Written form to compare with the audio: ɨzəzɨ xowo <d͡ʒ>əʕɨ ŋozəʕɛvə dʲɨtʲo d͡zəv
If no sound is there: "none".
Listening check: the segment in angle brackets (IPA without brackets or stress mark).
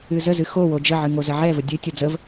d͡ʒ